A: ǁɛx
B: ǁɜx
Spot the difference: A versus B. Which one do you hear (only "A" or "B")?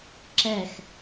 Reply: A